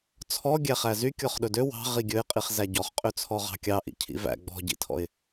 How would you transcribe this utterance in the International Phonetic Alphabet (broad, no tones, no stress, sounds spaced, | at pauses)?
t͡sʰ ɔ ɡʲ æ χ æ z y kʲ ɔ χ ɗ ɵ d ø w ɑ̤ ʁ i ɡʲ ɵ ɪ̯ qʼ i χ z æ ɟ ɔ χ qʼ ø t͡sʰ ɔ ʁ ɑ̤ kʲ ɑ ʔ ḭ cʰ ḭ v æ̰ ɡ͡b ɔ̤ ɟ ḭ tʰ ɔ̰ ɪ̯